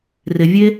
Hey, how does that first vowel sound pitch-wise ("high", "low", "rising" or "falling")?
low